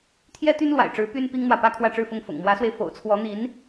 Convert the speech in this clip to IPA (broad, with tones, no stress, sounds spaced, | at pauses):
t̪ʰ j ɛ˥ t̪ y˥ n l w a̰˨˩ ɪ̯ ʈ͡ʂ ɻ̩˧˥ p y˥ n p i˥ ŋ n̪ w ä˨ p ä˥ kʰ w ä˥˧ ʈ͡ʂ ɻ̩˥˧ f ʊ˥˩ ŋ f ʊ̰˨˩ ŋ m w ä˧˥ s w e˧ ɪ̯ f o̰˨˩ ʊ̯ t͡sʰ w ɔ˧˥ n̪ i˧˥ n